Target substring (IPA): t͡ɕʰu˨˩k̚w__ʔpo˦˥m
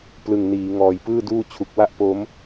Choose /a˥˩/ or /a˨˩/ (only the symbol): a˥˩